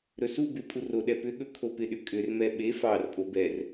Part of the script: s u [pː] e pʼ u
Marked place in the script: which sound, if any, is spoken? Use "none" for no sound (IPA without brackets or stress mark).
b